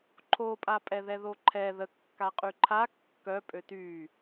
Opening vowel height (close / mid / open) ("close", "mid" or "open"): mid